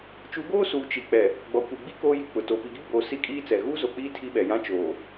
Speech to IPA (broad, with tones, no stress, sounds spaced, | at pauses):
t͡ʃ u˨˦ ɡ oː˦ s uː˨ t͡ʃ i˨ k͡p ɛ˨ | ɡ͡b ɔ˨ kʷ i˨ ɡ͡b i˦ k oː˦ j i˨ k͡p ʊ˨ t o˨ p i˨ ɡ i˦ ɡ͡b oː˨ s i˦˨ kʼ iː˦ t͡s ɛ˨ ɣ uː˦ z o˨ k͡p iː˦ tʰ i˦ ɓ ɛ˨ j ã˦ t͡ʃ oː˨